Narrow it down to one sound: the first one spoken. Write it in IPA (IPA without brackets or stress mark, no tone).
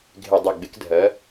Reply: ɡʱ